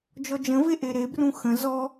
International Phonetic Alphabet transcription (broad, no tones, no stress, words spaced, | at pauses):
d͡ʒɔd͡ʒə̃ve ʔeɾebrũ xə̃ zɔ